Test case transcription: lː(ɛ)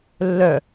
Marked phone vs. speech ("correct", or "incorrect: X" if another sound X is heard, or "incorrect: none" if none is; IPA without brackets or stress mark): incorrect: œ